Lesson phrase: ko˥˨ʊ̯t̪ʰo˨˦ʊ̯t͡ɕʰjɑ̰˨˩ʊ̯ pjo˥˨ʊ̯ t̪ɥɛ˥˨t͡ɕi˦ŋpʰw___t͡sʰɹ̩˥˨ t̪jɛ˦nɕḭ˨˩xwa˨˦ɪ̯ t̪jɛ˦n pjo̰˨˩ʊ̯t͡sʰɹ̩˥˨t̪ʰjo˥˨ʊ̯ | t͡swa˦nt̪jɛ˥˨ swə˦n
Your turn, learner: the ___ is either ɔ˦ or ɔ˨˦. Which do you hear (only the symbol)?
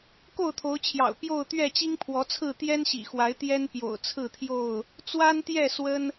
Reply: ɔ˨˦